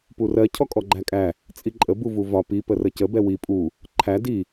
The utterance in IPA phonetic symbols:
purɜ cʰɔkʼɔɡ͡ǃækʼæ | t͡sʼiǃʼə buvuvɒ pi pərəcə bɛwi pʼu | ǃʰæ di

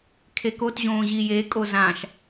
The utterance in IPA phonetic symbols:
kʰekot ʑõːʑijekʼo zãʃ

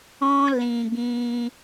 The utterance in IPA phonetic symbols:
ɔ̃˧ lĩ˨ɡĩ˧

